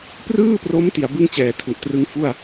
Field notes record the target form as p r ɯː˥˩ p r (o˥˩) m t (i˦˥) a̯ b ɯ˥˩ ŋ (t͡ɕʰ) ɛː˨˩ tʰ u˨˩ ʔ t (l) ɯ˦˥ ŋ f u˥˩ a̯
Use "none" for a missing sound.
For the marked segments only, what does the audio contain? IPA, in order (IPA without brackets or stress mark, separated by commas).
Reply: o˦˥, i˩˦, t͡ɕ, r